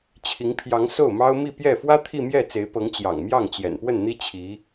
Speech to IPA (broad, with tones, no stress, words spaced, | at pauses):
t͡ɕʰi˧˥ŋpʰjɑ˧˥ŋso˥˩ʊ̯mɑ˥ʊ̯ mi˥˧ pjɛ˥˩ fwä˥ t̪ʰi˥˧mjɛ˥˩t͡se˧˥ɪ̯pɤ˧˥ŋ t͡ɕjɑ̰˨˩ŋmjɑ˥˩ŋt͡ɕjɛ̰˨˩n pwə˥˩nn̪i˥ t͡ɕʰi˧˥